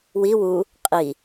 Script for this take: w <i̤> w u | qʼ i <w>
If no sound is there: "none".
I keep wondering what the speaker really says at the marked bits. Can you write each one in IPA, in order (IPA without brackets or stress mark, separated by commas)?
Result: i, none